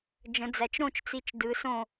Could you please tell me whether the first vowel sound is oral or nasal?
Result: nasal